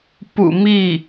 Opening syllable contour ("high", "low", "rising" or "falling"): low